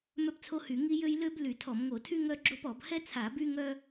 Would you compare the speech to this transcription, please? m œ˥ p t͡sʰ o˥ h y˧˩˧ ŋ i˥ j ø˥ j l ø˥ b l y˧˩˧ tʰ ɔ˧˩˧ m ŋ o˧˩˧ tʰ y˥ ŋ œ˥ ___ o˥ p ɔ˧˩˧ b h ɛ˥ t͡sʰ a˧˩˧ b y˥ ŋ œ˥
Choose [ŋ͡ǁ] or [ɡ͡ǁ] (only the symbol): ɡ͡ǁ